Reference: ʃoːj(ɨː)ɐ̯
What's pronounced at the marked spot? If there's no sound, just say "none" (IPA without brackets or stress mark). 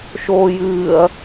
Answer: ɨː